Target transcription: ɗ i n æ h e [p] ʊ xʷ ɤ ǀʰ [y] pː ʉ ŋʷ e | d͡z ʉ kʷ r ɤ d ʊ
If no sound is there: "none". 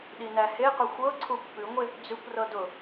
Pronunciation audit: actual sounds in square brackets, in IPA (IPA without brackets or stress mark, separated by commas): q, u